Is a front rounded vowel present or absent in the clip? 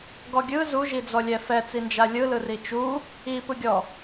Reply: absent